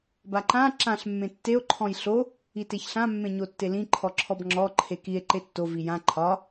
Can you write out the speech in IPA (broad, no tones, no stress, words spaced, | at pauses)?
baǃã ǁãɬ mːẽtːeo̯ ǃʰɔ̃jɬo | iteçɬã mːẽɲotːelĩ ǃʰɔǁʰɔbŋ͡ǁɔ ǃʰekie̯ ǃetːo vijã ǃʰɒ